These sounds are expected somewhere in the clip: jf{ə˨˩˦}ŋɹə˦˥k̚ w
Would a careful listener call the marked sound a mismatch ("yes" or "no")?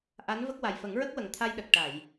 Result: no